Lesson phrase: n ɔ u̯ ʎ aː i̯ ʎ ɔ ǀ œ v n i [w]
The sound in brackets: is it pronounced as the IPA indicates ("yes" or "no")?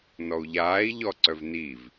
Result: no